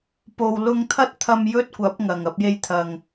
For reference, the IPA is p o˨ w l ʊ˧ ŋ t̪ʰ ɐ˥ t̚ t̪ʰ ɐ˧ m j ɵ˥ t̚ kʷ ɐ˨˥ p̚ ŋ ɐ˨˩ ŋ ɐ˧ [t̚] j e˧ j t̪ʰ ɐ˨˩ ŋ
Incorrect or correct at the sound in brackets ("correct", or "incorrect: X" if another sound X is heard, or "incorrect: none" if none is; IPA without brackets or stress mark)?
incorrect: p̚